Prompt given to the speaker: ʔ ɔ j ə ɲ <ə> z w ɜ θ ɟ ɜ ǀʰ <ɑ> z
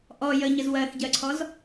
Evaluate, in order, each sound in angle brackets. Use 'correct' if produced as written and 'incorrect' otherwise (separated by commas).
correct, incorrect